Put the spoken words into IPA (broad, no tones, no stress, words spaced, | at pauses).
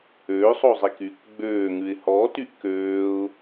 øːsˤozˤik yk ɡ͡bøːŋʉɪ̯ hɔːtyʔ køːʊ̯